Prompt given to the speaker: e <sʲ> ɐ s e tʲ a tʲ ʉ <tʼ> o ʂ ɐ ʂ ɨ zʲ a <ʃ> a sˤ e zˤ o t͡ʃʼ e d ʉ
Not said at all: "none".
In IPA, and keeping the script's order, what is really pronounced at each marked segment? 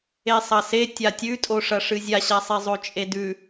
sˤ, tʼ, ɕ

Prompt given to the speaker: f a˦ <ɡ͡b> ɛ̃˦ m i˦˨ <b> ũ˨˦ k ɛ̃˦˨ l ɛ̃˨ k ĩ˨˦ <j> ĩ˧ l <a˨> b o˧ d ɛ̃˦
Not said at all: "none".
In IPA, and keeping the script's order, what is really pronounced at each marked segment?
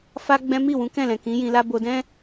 ɡ͡b, w, j, a˦

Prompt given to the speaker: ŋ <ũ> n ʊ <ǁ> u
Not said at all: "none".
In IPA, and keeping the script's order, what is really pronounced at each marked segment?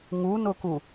u, k

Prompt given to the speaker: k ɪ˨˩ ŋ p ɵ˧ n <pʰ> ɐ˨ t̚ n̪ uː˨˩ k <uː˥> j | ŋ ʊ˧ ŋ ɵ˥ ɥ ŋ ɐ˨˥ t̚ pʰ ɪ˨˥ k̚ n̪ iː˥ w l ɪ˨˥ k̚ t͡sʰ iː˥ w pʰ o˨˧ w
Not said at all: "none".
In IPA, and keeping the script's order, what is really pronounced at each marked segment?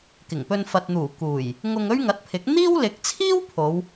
f, uː˨˩

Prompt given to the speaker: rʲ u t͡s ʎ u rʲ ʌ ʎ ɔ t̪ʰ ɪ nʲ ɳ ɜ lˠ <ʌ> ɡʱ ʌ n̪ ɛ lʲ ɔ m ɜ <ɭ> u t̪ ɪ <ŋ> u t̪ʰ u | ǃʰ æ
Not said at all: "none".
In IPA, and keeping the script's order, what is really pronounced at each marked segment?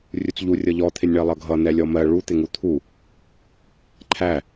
ʌ, ɭ, ŋ

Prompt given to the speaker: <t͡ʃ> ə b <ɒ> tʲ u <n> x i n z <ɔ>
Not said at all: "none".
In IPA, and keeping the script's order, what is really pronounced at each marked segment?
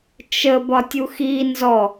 t͡ʃ, ɒ, none, ɔ

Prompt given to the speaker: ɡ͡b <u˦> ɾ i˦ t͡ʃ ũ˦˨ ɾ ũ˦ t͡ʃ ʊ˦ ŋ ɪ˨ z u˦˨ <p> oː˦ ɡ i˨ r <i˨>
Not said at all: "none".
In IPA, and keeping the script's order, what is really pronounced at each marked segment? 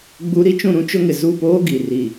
u˦, p, i˨

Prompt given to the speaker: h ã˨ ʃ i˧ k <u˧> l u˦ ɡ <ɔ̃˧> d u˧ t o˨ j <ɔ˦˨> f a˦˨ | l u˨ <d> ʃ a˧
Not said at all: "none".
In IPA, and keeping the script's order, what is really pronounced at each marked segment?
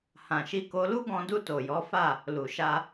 o˧, ɔ̃˧, ɔ˨˦, none

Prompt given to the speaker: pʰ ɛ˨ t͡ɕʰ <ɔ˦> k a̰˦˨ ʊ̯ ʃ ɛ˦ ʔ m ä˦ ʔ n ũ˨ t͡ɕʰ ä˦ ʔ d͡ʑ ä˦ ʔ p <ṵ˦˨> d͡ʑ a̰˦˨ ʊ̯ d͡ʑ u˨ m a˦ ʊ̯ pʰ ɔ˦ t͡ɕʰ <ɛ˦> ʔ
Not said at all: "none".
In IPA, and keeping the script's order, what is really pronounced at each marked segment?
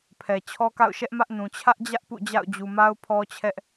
ɔ˦, ṵ˦˨, ɛ˦

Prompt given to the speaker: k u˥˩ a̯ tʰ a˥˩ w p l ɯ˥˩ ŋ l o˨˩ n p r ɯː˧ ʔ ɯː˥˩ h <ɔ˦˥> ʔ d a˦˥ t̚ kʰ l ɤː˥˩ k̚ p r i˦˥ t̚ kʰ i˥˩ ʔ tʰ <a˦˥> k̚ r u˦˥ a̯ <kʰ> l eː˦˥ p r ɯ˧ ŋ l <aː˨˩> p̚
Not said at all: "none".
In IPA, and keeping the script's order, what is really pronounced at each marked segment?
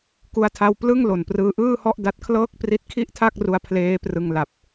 ɔ˥˩, a˥˩, pʰ, a˨˩

